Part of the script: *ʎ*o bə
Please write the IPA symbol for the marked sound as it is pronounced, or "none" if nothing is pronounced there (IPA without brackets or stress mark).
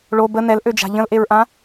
ɭ